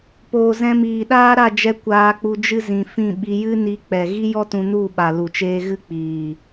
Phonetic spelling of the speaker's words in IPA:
p oː˨ z ɛ̃˧ m iː˨ ɗ aː˦ ɾ a˦˨ d͡ʒ ɛ˧ kʷ aː˧ k͡p u˧ d͡ʒ ɨ˦ z ĩ˨ f ĩ˦˨ ɓ i˧ j ɨ˦ n i˧ k͡p ɛ˨ ɣ i˦ j ɔ˦ t ũ˧ n u˦˨ ɓ a˨ l u˨ t͡ʃ eː˦ ɣ ɨ˦ k͡p iː˨

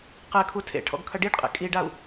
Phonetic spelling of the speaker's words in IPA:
q ɛ kʰ u tʰ ḛ ʈʰ ɔ̰ ɡ kʰ ɐ ɖ i ɖ qʼ ḛ kʼ i ɖ a u̯

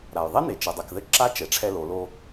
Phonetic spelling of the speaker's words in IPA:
ɾ a˩ j ðˤ e˥ n e˩ t͡ʃ e˩ dˤ ɛ˩ k ð ɘ˧˥ ǁ a˧˥ t͡ʃ ɛ˩˧ ʈ͡ʂʰ ɛ˧ l o˩˧ l o˧

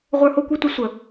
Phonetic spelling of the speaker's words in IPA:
ʁʷ ə˞˦ h o˥ kʷ e˥ tʷ ɐ˥ sʷ ə˩

